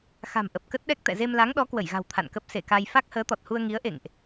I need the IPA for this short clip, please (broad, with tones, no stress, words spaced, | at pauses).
xa̤˨˩mʔə˨˩p̚ kə˦˥t̚ɗɛ˦˥k̚ t̪ɛ̰˧˨ ze˧mla˨˦ŋɗɔ˨˦ kwə˧˩jɣa̤˨˩w t̪ʰa̰˧˨nkə˦˥p̚ se˧˩ka˧j fa˦˥k̚həː˨˦t̪ɔ˨˩t̚hu˧ə̯ ŋi˨˦ə̯ʔḛ˧˨ŋʔ